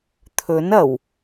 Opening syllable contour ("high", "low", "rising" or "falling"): rising